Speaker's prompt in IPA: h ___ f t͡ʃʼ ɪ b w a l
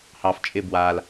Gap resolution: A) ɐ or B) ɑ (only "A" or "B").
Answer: B